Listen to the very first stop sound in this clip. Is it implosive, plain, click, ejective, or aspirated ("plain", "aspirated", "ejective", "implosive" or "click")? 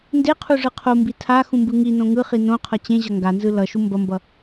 plain